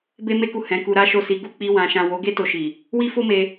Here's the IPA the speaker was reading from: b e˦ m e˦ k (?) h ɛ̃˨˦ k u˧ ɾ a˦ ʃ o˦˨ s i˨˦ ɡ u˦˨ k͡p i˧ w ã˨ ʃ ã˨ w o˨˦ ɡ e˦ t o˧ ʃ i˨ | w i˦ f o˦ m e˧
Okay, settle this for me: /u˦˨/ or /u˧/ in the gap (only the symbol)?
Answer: u˦˨